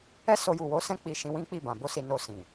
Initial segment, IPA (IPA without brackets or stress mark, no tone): ɛ